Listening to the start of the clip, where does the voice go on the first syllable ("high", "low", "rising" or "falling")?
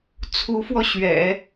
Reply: rising